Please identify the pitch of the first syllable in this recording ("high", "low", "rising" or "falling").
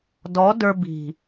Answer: rising